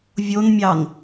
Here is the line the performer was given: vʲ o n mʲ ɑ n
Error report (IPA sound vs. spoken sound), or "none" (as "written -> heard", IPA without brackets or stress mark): none